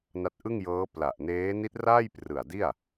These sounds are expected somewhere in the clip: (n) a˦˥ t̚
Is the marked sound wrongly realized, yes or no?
no